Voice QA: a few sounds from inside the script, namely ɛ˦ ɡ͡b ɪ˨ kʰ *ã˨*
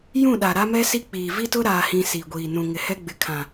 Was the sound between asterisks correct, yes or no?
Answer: yes